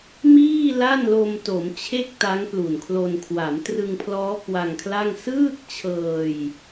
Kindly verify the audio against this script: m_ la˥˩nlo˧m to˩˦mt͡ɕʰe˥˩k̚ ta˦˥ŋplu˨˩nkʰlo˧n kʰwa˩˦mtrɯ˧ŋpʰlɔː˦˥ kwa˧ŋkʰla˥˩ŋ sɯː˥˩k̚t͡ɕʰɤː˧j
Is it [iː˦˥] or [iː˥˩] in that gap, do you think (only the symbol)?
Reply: iː˥˩